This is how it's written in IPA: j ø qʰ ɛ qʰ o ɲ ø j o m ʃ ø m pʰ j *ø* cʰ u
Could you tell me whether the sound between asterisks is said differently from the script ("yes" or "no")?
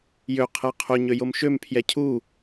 yes